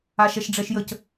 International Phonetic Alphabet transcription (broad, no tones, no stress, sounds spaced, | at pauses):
a ʃ ɛ ʃ ɖ͡ʐ ɛ ʃ j ə c